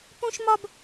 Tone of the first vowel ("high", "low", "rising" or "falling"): high